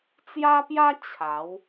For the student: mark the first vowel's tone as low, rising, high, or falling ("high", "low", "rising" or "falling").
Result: high